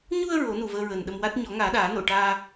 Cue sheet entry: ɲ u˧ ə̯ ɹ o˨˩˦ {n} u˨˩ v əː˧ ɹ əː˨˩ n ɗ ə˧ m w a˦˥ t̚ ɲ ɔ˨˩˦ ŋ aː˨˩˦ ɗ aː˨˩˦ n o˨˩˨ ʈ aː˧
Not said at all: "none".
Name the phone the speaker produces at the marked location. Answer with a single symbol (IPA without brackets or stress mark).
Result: n